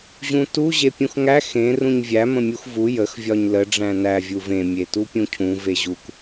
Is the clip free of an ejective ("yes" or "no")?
yes